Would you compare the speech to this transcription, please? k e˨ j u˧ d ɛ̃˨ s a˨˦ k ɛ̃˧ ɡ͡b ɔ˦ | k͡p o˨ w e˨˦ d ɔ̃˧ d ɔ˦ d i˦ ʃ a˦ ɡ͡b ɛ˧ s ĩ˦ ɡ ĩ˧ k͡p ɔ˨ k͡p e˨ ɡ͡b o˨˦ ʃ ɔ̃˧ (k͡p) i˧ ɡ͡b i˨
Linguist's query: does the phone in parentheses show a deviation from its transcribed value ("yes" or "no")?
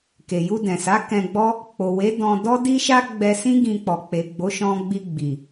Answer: yes